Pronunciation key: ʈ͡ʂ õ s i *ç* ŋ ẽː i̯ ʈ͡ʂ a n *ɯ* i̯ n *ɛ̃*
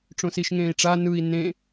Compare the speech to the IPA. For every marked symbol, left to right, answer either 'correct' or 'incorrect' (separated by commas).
incorrect, correct, incorrect